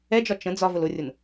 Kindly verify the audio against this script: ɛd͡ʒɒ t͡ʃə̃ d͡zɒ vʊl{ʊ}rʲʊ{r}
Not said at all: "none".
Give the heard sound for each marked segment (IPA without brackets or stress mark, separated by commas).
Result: ʊ, n